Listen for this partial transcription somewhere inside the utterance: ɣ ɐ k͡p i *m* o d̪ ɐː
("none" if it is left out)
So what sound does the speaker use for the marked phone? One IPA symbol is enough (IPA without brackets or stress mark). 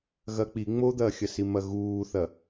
ŋ͡m